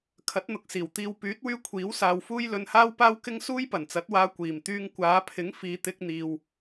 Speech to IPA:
kʰ ɐ˨˥ t̚ n̪ ʊ˨ k̚ s iː˨˩ w t̪ iː˨ w p yː˨˥ t̚ w yː˧ kʷʰ iː˨˥ w s aː˨ w f uː˥ j l ɵ˧ n h aː˥ w p aː˥ w k ɪ˥ ŋ s uː˥ j p ɐ˨˩ n t͡s ɐ˨˥ t̚ w aː˧ kʷ iː˨˩ m t̪ yː˧ ŋ kʷ aː˨˧ pʰ ɪ˨˥ ŋ f iː˨˧ t̪ ɪ˧ k̚ n̪ iː˨ w

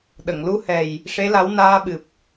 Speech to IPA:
ɗ ə˨˩˨ ŋ l u˧˥ h ɛ˨˩ j | ʂ e˧˥ l a˧˥ w n aː˧ ɓ ɨ˨˩ p̚

